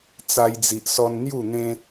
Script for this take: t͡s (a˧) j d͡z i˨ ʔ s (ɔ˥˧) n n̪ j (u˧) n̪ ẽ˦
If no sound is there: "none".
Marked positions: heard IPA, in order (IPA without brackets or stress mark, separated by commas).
a˧, ɔ˧, u˥˧